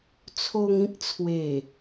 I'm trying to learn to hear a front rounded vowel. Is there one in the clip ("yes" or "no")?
no